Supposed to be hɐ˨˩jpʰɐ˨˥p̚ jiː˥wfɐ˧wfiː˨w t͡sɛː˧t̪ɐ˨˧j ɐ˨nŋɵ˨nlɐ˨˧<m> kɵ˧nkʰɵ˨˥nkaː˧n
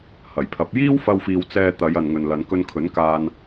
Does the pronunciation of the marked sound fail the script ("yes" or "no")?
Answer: yes